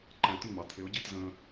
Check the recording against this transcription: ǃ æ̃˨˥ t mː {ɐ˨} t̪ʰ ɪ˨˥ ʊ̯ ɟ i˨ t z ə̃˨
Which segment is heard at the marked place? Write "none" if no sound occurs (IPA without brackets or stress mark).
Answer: ɑ˨